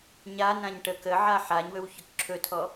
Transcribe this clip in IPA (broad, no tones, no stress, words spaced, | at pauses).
ɲanãɲ ʈə kəʕa ħaɲwɵw çɵkǁʰɵtʰɔ